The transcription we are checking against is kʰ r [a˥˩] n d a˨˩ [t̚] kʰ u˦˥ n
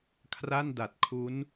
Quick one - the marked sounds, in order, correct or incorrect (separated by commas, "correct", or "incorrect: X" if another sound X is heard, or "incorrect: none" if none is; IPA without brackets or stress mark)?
correct, correct